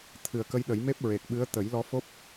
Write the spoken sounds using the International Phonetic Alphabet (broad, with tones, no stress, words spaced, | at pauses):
t̪ʰɨ˨˩ə̯kə˧jɗə˨˩˦jme˦˥p̚ ɹe˨˩k̚ɓɨ˧˥ə̯ t̪ə˨˩˦jlɔ˧˥fo˦˥p̚